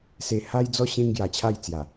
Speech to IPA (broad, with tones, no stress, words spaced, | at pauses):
se˨˩ha˧jd͡zɔ˧ ɕẽ˦ŋɡja˨˩t͡ɕʰa˥˧jt͡sja˨˩